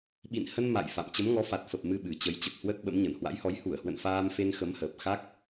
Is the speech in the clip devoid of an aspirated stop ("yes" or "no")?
yes